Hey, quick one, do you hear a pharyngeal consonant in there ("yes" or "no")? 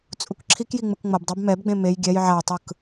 yes